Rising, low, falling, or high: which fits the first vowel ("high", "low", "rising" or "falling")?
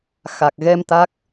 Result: low